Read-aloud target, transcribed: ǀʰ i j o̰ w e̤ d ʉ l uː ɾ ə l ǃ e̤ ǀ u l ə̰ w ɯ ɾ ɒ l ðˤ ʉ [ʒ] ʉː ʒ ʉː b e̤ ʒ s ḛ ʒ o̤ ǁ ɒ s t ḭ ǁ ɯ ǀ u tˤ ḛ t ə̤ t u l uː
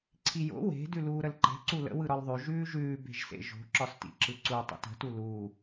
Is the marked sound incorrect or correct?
correct